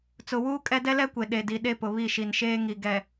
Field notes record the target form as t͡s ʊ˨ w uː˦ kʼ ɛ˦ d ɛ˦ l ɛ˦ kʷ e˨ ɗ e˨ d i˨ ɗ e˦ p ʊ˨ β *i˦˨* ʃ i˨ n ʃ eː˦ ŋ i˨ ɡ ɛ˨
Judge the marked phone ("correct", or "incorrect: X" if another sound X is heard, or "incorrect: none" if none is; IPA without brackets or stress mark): correct